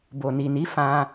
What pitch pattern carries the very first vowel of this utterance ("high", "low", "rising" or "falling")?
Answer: low